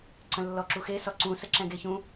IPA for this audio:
ǀ ə̃ lː ɔ ǁ u x e s ɔ ǀ ũ s ə ǁ ɛ̃ ɡ e ç ũ

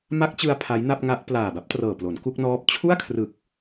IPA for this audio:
m a˦˥ k̚ t͡ɕ ɯ˧ a̯ pʰ a˦˥ j n a˥˩ p̚ ŋ a˦˥ ʔ p l aː˨˩ b a˦˥ p̚ t r ɤː˨˩ p l o˩˦ n k u˥˩ k̚ n ɔː˦˥ p̚ t͡ɕʰ u˥˩ a̯ kʰ r ɯ˨˩ k̚

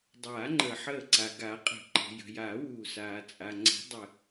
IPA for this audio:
dˤ aː˨˩˦ ŋ͡ǃ əː˩ ħ əː˧˩ ǀ a˩ ɡ a˨˩˦ qʼ ə̤˨˩˦ ǃ ə̤˩ j ə̤˩ j aː˨˩˦ w uː˩ s aː˩ t͡sʼ a˩ ŋ͡ǀ ə̤˨˩˦ dˤ ə˩

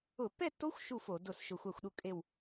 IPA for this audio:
ʊ˧˩˧ pː ɛ˥˨ tː o˦˥ xʷ ʃ u˥˨ f o˧˩˧ d ʊ˧˩ s ʃ ʊ˧˩˧ xʷ a˧˩ xʷ ɗ u˥˨ kʼ e˧˩ w

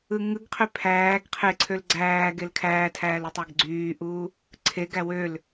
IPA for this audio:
ɯ ŋ ɯ ɡ qʰ ø pʰ æː ɡ qʰ e ǀʰ ø l ɡ͡ǀ æː ɡ e l kʰ æː tʰ æː l u tˤ æ ɡ ɡ͡ǀ yː ʔ uː | ǀʰ e ɡ æ w ø l

